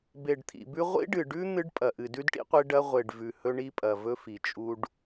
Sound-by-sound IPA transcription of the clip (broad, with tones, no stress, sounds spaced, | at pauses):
b e˨ ɖ t̪ʰ ḭ˨ b ʉ˦ ʁʷ ḭ˦ ɖ ɨ˨ ɖ ʉ˦ n̪ ɨ˦ ɖ pʼ ɐ˨ ʔ ɨ˨ d ʉ˦ d ʈ ḭ˦ qʷ e˦ ɖ ɐ˦ ʁʷ e˨ ɖ v ʉ˨ h ɵ˦ ɳ i˦ pʼ ɐ˨ v ɵ˦ f i˨ t͡ʃʼ u˦ ɖ